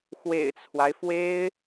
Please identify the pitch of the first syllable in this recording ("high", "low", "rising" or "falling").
low